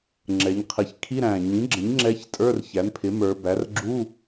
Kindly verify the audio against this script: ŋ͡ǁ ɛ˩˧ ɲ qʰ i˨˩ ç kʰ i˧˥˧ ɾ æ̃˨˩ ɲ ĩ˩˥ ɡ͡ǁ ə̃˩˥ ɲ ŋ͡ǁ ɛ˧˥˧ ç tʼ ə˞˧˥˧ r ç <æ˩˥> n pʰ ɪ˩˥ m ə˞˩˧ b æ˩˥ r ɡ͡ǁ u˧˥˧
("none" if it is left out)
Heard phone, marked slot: æ˩˥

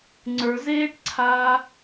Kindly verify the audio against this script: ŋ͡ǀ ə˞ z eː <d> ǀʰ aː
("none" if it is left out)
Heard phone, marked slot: ʈ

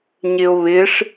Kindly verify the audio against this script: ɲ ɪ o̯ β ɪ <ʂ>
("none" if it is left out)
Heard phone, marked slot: ʂ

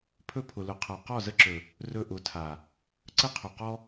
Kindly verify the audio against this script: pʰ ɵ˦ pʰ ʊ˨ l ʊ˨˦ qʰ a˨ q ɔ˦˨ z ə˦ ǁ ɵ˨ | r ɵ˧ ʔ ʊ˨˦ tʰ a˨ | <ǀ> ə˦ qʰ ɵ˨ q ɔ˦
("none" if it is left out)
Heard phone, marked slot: ǀ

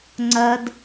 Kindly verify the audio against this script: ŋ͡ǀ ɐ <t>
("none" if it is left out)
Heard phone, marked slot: d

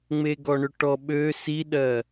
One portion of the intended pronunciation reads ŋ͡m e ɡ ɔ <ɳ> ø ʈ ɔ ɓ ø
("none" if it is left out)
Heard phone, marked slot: ɳ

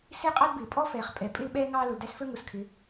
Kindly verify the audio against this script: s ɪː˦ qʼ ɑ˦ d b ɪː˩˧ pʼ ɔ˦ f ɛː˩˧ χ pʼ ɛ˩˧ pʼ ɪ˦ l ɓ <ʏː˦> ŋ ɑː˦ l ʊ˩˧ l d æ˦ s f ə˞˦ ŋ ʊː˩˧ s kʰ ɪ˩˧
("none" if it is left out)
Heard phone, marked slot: ɛː˦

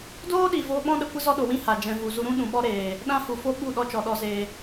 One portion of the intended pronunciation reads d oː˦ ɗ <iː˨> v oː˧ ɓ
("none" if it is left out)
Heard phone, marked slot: iː˨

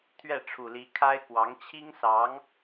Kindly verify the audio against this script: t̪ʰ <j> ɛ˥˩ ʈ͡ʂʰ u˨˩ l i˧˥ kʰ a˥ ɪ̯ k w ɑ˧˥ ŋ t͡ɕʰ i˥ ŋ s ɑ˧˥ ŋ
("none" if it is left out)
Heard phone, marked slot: ɥ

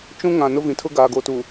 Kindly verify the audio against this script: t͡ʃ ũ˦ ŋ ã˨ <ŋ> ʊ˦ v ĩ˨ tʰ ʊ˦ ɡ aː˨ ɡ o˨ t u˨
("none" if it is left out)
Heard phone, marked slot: n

